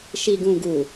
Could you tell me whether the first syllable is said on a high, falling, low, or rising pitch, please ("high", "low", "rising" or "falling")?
low